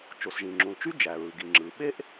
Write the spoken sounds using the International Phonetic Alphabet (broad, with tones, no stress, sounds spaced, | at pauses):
t͡ʃ o˩ s ʒ ĩ˩ ŋ͡ǁ ũ˩ l t͡ʃ y˥ d͡ʒ æ˩ ɹ ɯ˩ ɡ i˩ ŋ͡ǁ ɯ˩ ɓ e˥ ʔ